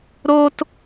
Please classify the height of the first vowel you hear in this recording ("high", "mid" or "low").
mid